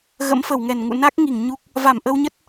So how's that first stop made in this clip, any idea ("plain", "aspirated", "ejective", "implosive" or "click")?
plain